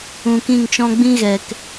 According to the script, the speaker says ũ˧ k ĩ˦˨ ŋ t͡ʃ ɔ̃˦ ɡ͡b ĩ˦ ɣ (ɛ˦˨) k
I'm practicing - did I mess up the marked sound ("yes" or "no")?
yes